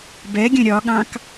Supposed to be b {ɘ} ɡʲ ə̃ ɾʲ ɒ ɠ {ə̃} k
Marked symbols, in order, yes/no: no, no

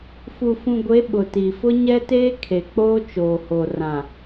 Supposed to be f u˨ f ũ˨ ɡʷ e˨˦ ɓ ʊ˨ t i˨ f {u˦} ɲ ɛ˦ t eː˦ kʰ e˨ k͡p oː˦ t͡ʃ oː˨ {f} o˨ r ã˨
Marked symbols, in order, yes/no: no, no

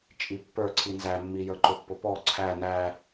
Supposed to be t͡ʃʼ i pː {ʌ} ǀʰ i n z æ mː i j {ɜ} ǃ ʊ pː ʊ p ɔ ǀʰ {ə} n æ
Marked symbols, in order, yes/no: no, no, no

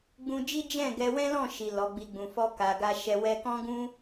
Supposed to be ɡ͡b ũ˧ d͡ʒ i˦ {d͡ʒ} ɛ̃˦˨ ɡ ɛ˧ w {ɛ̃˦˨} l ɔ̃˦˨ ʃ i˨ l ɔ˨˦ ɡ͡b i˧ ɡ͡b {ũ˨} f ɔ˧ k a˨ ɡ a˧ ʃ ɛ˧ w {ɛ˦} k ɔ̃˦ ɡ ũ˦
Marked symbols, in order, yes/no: yes, no, yes, no

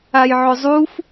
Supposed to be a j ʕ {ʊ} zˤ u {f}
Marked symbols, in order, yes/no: yes, yes

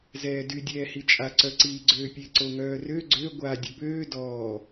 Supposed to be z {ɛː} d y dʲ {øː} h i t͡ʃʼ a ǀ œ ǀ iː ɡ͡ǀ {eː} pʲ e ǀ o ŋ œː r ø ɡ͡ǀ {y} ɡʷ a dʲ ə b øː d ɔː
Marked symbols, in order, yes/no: yes, no, no, no

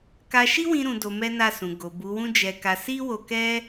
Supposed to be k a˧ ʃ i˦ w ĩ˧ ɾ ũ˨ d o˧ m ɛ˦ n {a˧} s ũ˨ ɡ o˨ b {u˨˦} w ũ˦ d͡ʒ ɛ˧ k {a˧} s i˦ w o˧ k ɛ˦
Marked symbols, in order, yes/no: no, yes, yes

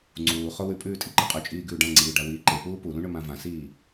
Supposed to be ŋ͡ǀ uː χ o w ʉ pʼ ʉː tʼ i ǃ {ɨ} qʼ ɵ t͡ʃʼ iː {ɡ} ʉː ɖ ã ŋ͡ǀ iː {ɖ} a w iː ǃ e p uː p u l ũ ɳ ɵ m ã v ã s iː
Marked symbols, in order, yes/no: yes, yes, yes

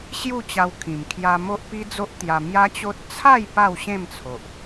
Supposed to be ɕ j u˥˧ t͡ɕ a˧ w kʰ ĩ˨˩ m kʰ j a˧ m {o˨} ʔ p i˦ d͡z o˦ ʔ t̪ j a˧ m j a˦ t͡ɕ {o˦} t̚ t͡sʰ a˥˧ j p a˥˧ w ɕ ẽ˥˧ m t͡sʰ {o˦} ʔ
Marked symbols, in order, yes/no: no, yes, no

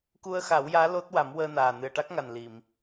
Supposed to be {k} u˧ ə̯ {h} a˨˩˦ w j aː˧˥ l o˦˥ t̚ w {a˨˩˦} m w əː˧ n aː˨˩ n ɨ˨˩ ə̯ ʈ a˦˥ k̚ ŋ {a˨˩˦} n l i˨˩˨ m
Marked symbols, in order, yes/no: yes, no, yes, no

